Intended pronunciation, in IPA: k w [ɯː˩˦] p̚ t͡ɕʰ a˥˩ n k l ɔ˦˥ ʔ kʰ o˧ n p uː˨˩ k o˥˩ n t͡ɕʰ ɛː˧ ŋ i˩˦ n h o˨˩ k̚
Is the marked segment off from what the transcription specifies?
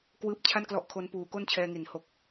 yes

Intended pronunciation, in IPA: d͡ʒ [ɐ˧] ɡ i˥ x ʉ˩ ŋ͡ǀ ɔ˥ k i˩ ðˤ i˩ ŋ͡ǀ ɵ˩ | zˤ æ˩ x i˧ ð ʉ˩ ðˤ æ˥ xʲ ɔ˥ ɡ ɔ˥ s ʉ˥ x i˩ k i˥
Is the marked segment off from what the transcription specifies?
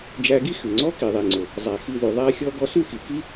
yes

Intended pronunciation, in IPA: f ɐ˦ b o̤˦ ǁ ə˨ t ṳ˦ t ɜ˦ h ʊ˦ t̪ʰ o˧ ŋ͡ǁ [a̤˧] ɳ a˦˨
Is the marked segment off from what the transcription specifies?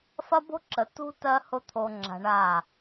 no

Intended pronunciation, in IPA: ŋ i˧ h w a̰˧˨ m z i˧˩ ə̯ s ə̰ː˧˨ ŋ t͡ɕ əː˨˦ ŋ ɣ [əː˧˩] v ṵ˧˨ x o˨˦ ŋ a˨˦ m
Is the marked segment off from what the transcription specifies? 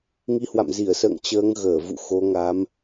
no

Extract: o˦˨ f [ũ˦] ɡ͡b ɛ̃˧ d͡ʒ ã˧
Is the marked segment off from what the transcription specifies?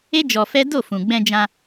yes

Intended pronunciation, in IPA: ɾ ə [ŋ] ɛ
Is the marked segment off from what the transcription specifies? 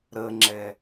yes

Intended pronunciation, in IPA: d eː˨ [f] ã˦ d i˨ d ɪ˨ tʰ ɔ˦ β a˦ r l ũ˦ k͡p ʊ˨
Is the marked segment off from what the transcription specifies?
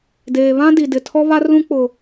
yes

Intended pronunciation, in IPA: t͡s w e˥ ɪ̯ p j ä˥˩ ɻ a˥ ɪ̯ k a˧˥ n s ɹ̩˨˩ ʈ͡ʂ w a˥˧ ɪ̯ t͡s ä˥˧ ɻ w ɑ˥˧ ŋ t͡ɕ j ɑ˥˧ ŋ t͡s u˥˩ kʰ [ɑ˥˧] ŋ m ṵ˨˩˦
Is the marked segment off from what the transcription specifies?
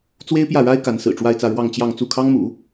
yes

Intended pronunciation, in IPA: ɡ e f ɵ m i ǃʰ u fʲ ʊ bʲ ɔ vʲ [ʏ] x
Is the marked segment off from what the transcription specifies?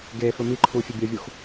yes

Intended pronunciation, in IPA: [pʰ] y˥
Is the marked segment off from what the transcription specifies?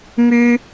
yes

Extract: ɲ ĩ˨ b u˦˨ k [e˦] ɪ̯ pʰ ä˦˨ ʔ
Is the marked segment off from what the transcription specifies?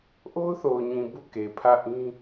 yes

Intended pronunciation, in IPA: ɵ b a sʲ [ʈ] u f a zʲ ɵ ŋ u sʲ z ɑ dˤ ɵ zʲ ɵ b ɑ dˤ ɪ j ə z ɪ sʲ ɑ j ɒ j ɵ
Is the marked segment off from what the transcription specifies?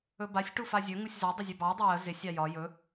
no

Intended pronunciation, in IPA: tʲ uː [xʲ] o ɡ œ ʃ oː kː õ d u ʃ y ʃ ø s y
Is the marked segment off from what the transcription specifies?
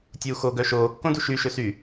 yes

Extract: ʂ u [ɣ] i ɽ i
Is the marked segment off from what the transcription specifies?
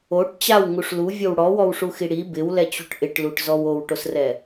yes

